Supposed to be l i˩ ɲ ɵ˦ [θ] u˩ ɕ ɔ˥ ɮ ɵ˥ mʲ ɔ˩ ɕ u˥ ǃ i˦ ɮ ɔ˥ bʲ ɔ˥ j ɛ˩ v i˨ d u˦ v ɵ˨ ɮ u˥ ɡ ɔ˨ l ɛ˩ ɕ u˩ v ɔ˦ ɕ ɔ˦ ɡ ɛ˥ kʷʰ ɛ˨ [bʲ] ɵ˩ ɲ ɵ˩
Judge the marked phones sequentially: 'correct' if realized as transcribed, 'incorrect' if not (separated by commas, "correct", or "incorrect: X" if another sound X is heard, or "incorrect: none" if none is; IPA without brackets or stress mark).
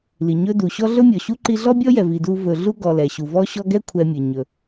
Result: incorrect: d, incorrect: mʲ